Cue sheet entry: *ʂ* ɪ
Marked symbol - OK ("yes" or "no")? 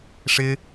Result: yes